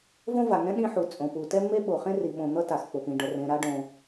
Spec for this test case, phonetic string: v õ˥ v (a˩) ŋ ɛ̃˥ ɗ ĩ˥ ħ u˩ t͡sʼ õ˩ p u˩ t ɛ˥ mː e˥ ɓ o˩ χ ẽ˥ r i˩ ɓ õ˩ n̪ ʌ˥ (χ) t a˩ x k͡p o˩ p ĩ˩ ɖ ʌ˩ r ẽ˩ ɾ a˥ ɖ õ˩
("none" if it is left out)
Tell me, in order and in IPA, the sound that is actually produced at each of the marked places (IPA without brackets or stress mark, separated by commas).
a˩, none